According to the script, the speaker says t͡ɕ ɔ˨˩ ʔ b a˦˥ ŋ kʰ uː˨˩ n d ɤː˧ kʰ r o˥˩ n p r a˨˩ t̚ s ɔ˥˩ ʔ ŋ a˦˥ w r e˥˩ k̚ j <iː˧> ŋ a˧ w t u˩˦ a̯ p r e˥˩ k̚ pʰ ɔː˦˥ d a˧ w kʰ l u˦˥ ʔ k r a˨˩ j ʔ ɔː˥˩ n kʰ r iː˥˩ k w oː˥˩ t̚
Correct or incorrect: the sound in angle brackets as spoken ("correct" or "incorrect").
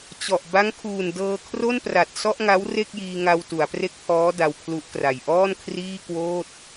correct